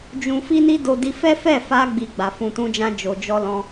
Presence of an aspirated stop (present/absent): absent